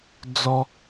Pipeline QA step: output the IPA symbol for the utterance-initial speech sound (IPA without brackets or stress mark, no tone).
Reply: d͡z